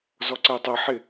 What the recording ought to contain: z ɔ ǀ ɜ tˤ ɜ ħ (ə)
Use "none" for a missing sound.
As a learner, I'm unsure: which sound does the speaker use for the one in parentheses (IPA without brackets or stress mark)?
ɪ